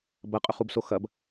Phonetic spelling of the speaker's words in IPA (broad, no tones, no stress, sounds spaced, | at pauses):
b ɐ qʼ ɵ χ u b s o x ɐ b